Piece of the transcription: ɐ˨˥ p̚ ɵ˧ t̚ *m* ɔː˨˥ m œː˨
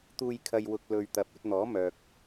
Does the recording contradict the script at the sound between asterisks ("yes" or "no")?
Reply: yes